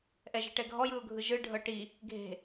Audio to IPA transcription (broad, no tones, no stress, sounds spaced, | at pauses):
ʔ ɛ ʒ e̤ ʈ ɛ ɡʱ ɔ j ɯ ʊ̯ ɡʱ ɯ ʒ ɯ ɖʱ ɤ ʈ i | ɡʱ e̤